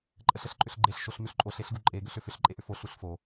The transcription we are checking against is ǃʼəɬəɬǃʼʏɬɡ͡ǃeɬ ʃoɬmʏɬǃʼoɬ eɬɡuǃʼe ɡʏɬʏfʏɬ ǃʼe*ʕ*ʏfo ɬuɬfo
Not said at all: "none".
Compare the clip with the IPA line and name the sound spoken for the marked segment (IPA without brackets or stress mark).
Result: ʔ